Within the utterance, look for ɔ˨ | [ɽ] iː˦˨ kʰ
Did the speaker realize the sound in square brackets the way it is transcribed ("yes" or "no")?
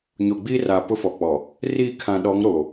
no